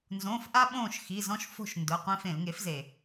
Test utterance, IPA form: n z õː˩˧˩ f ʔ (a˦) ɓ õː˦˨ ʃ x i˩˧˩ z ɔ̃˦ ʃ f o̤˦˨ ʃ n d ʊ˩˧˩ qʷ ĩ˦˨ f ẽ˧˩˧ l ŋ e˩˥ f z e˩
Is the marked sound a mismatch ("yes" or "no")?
no